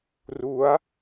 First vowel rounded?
yes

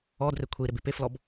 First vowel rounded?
yes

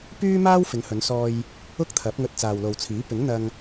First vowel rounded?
yes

